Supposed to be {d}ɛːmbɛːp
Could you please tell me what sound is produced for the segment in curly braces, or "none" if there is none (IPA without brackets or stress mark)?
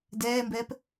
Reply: d